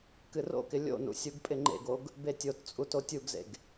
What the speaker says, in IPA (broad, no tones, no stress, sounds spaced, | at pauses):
k ɨ r o̰ k ɪ lʲ o̰ n ṵ sʲ u ɡ pʼ ɪ ŋ͡ǃ ḛ ɡ o ɡ | b e tʲ o t t͡sʼ u t o tʲ u ɡ z ḛ ɡ